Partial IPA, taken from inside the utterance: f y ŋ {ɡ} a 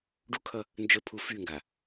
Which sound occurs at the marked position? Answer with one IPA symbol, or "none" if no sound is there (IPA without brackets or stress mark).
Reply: ɡ